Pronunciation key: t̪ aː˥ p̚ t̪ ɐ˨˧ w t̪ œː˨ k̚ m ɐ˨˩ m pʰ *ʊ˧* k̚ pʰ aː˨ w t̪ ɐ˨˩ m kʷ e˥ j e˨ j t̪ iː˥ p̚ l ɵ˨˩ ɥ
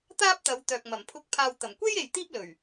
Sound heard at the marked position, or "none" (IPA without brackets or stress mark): ʊ˧